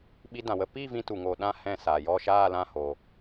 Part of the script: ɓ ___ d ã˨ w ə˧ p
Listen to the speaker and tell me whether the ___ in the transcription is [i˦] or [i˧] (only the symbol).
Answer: i˧